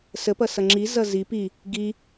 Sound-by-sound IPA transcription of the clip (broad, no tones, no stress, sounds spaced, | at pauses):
s ə p ʌ s ʌ ŋ͡ǁ i z ʌ z i p i | ɡ i